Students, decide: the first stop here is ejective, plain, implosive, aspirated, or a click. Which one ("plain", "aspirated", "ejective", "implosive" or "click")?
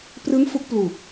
plain